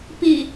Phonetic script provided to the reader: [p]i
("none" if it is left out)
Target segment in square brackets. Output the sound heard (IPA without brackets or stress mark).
p